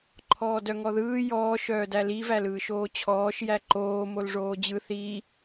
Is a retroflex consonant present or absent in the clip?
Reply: present